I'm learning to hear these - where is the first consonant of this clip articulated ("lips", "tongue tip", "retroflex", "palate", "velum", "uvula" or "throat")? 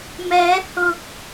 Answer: lips